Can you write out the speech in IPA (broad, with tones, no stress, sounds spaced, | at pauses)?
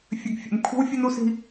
fʲ ʉ˨ ɡ fʲ ḛ˨ m kʷʰ i̤˦ w fʲ o˦ n u˦ s i̤˦